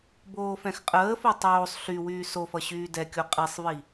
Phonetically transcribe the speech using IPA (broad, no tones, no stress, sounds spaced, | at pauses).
b oː f ɛ̃ x qʼ əː f o tˤ oː sˤ ɬ y w yː s o f ʌ ɕ yː d ɛ kʲ o qʼ i sˤ v i